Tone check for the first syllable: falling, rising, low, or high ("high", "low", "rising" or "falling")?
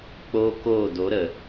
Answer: high